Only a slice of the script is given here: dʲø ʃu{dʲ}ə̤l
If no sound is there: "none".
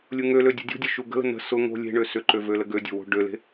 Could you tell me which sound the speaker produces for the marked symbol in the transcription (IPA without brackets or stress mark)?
ɡ